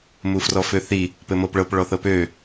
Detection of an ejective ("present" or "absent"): absent